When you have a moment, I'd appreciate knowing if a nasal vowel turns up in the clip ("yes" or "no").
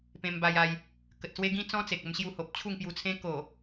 yes